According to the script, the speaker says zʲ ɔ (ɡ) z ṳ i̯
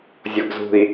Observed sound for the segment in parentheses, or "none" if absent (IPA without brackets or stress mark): ɡ